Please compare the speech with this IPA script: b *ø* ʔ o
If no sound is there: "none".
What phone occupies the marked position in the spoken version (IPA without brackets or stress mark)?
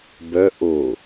œ